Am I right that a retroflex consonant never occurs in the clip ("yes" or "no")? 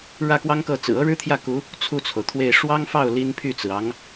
no